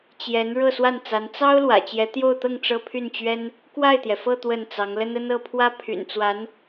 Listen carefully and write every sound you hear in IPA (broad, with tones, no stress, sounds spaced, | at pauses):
t͡ɕ j ɛ˧˥ n ɻ ɤ˥˧ s w a˥˩ n t͡s a˧˥ n t͡s ɑ˥ ʊ̯ l w ä̰˨˩ t͡ɕ j ɛ˧˥ t̪ j o˥˧ ʊ̯ t̪ ɤ˥˩ ŋ ʈ͡ʂ ɤ˥ pʰ y˥˩ n t͡ɕ ɥ ɛ˥ n | k w a˥˩ ɪ̯ t̪ j ɛ˩ f ɤ˥˧ t̪ w ə˥˩ n t͡s ɑ˧˥ ŋ l ə˥ n ə˥ n ɤ˥˩ pʰ w ä˥ pʰ y̰˨˩ n t͡s w a˧˥ n